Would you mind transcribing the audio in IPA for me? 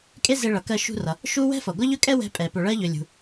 kʼ e˥ z e˧ ɭ ʌ˩ k ɜ˧ ʃ ṳ˧ r ʌ˩ | ʃ u˥ w ɛ̤˥ f ʌ˩ ɡʷ ʌ˥ ʎ ɵ˥ kʼ ɛ˥ w ɛ̤˧ pʼ ɛ˩ p ɵ˩ ɭ ɜ˧ ʎ ɵ˩ lʲ ṳ˩

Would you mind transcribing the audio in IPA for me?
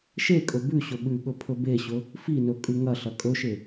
ʃ e kʼ ɵ b ʉ ɕ ɵ ɓ ʉ ɠ ɵ pʰ ɵ b e ɕ ɵ | f i n ɵ kʼ ʉ ŋ ɐ ɬ ɐ kʼ ɵ ʃ e

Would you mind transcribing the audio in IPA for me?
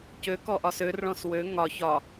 c ø k ɔ ʔ ɒ s ø r ɭ ɔ̃ s w ø ŋ ɒ ç ɒ

